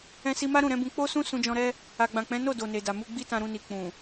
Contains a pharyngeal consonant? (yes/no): no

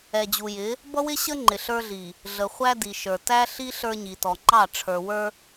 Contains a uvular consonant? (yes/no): yes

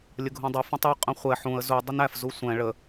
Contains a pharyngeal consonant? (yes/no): yes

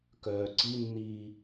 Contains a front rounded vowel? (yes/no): yes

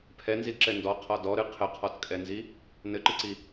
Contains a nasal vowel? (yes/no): no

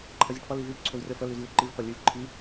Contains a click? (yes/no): yes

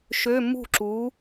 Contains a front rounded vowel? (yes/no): yes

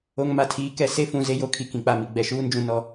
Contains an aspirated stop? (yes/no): yes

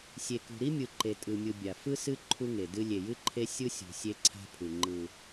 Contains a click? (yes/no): yes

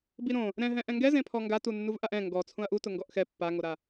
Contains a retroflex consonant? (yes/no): no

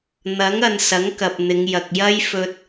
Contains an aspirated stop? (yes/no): no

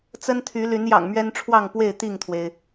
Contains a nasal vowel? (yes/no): no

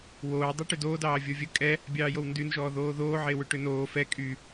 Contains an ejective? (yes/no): yes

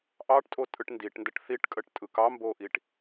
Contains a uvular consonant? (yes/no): no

